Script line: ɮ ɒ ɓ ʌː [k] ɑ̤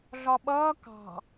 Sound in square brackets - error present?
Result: no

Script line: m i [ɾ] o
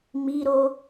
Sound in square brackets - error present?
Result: no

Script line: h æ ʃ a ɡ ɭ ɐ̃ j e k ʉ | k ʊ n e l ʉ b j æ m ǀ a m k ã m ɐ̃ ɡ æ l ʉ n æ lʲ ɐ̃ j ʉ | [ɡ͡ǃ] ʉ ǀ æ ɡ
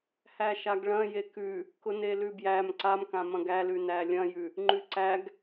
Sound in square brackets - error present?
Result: yes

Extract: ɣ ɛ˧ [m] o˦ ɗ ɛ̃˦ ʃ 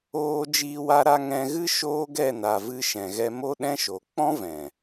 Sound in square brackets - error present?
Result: no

